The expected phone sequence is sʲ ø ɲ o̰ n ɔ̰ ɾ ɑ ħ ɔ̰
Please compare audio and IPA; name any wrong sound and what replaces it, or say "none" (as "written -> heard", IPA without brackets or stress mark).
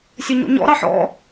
n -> ɲ